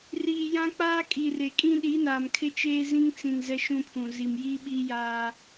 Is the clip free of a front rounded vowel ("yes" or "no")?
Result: yes